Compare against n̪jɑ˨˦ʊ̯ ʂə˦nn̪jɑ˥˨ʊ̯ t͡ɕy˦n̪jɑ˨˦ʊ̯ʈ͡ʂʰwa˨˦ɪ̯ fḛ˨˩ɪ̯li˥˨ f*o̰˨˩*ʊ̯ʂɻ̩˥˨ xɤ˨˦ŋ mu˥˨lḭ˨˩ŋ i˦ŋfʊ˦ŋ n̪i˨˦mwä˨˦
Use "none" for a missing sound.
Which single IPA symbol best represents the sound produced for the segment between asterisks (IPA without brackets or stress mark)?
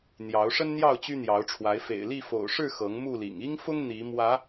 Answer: o̰˨˩